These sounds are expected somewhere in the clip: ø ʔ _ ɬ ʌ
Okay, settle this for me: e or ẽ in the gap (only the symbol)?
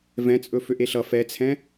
e